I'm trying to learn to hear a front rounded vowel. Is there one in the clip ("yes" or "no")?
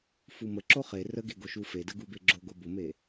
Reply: no